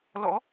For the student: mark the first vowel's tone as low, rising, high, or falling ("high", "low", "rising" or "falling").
rising